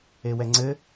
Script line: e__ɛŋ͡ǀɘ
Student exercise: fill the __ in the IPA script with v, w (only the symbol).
w